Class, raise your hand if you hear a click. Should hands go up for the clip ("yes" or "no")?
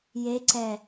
yes